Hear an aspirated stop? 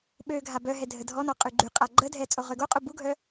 no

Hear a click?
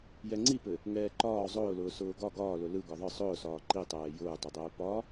yes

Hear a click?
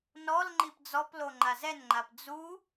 yes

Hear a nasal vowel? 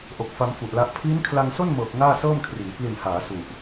no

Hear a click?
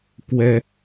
no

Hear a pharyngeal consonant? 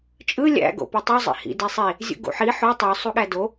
yes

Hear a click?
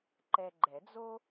yes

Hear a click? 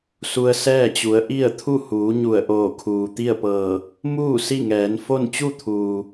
no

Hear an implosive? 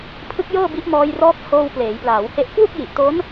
no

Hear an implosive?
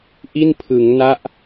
no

